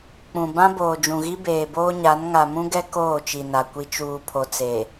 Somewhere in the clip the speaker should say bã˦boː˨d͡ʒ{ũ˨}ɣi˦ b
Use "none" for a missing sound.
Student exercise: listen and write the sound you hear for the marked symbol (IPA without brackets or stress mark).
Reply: ũ˨